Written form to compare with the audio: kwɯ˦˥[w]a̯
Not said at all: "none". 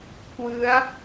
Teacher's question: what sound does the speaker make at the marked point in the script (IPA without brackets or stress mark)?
none